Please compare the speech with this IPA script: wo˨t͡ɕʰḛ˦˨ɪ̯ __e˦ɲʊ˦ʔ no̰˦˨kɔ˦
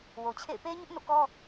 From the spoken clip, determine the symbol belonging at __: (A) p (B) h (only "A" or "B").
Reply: A